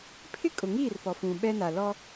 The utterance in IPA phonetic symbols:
pʰ ɪ˦ kʼ ʊ˨ ŋ iː˦˨ r p ɔ˨ f ũ˨ ɓ ɛ˦ n a˨ l ɔ˦

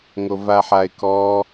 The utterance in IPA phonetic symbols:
ŋ o v a ħ a ɪ̯ k ɔ

